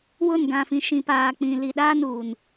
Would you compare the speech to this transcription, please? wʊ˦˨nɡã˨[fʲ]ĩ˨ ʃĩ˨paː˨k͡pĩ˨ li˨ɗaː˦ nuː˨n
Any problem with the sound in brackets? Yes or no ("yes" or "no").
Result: yes